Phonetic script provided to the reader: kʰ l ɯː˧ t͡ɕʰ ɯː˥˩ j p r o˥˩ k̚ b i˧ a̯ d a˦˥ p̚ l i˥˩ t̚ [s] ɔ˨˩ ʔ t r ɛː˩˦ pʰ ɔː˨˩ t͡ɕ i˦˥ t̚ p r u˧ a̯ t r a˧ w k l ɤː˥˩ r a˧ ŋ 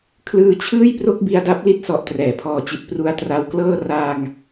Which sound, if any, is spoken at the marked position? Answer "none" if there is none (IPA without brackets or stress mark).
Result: s